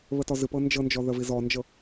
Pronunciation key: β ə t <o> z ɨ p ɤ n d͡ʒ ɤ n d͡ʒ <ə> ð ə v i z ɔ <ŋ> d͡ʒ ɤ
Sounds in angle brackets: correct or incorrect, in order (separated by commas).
incorrect, incorrect, incorrect